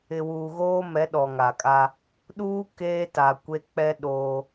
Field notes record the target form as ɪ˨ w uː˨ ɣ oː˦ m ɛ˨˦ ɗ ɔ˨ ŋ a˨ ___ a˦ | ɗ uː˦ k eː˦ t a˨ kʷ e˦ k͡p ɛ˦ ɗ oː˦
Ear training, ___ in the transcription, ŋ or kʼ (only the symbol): kʼ